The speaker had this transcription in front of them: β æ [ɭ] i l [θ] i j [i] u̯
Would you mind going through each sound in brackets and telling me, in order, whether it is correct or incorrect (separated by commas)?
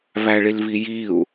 correct, incorrect, correct